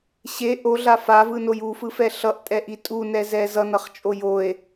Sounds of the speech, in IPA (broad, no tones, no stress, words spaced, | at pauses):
ɕe ʔoɮa favɯnoj ufɯfɛ ɬʌʔtʼɛʔi tʼunɛzɛ zʌnʌχt͡ʃʼo joe̯